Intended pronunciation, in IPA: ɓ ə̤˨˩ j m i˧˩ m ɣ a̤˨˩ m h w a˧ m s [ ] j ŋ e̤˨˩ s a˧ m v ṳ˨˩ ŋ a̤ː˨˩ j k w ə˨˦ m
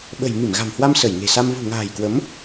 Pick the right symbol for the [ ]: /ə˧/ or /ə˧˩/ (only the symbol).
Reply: ə˧˩